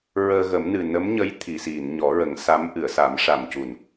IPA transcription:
ɹəː˧ ɣə˨˩˦mnɨ˨˩ nə˧˥mɲə˧˥j t̪ʰi˨˩˨si˨˩˨n ɲɔ˨˩˦ɹə˨˩˦ŋsa˧˥m ʔɨ˨˩˨ə̯sa˨˩˦mʂa˨˩mcu˨˩˨n

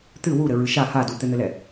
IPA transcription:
t̪ɨ wuɾɘɹɨ ʃa ha dut̪ɘn̪ɘlɛ

